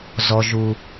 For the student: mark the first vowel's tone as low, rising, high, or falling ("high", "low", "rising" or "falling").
low